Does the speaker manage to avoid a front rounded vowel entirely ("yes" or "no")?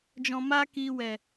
yes